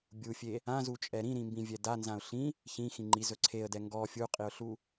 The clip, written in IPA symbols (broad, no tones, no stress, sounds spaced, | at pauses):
bʲ u fʲ e | ã z u t͡ʃʼ ɛ ɾ ĩ ɾ ĩ m b ĩ vʲ ɛ d a n z ã ʊ̯ ɬ ĩ | ç ĩ x ĩ ŋ͡ǃ i z ɵ ǀʰ e ə̯ d ɛ ŋ ɡ ɔ fʲ u qʼ i ʊ̯ ɬ u